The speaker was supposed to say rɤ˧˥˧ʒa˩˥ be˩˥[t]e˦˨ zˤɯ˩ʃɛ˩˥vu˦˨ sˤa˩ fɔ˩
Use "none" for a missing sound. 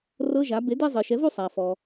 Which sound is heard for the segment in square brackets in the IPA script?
d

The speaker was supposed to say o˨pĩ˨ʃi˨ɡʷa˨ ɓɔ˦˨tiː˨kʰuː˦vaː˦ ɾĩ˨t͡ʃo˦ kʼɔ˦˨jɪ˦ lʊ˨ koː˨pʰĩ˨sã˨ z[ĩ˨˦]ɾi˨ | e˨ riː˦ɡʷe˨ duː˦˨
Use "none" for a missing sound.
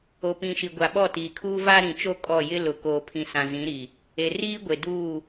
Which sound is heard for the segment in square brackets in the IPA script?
ĩ˨˦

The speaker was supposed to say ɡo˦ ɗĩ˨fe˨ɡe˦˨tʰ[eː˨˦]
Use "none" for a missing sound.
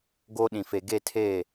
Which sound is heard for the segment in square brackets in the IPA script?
eː˦˨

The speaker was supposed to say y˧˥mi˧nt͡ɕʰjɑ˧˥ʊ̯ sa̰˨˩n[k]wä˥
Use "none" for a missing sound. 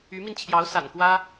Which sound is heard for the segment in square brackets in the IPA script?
k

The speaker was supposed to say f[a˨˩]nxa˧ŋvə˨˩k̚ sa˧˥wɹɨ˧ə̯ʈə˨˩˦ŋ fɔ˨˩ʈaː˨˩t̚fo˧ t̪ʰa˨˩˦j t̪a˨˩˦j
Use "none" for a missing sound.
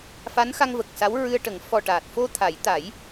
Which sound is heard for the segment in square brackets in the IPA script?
a˧˥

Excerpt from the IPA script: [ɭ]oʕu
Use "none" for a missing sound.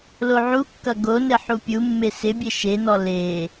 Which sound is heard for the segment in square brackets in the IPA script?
l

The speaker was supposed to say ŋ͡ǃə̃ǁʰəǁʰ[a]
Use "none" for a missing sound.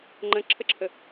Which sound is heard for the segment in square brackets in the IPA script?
ə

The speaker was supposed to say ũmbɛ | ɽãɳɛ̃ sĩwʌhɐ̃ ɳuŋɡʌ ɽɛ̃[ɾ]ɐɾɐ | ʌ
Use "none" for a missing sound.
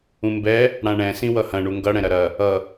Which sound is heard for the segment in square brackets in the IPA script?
ɾ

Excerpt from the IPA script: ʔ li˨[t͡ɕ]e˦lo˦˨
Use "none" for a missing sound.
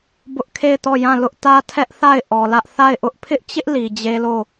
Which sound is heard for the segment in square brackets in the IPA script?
d͡ʑ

